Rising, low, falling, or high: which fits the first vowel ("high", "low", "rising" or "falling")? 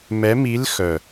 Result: rising